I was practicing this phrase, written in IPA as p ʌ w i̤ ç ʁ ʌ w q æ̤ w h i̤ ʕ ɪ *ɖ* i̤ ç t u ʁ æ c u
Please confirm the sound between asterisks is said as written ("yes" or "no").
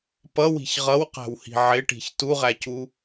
no